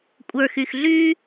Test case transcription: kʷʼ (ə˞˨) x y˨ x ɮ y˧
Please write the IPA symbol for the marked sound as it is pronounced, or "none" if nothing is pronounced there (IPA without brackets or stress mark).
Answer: ə˞˨